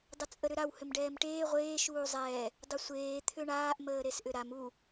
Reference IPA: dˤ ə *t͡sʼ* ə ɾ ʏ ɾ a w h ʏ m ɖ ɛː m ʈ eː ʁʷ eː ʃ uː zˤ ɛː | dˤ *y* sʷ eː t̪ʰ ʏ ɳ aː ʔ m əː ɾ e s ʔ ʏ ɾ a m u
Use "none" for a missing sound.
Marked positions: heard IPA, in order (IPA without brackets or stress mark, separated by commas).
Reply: t͡sʼ, ʏ